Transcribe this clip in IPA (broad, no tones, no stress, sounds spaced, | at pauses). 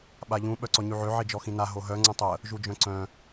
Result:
ɓ a ʎ ũ ɓ œ ǀ ɔ ɲ y ʕ ø ʕ i d͡ʒ ɔ x ĩ n a ɦ o ɦ œ ŋ͡ǀ ə̃ tˤ ə | ʒ u d͡ʒ œ̃ ǀ œ̃